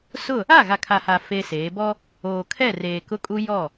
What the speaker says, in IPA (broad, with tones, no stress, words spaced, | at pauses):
sʊ˦˨ | a˦˨ɣa˨kʰa˨ha˨ feː˦seː˨˦ bɔ˦ | oː˨kʰɛ˦˨reː˨ kʊ˦kʼu˦ jɔ˦˨